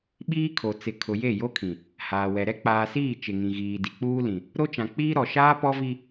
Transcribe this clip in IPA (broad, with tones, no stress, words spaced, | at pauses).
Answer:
ɓiː˦kʰo˨ t͡sɪ˨ kʰʊ˨je˦˨ jo˦kʰĩ˨ | haː˨wɛ˨ɾɛ˦ k͡paː˨siː˦˨ t͡ʃɪ˨ŋĩ˨ ɣiː˨di˨k͡puː˦ lĩ˨ | ɾo˦t͡ʃã˨k͡piː˦ ɾɔ˨ʃaː˦pɔ˦ vi˦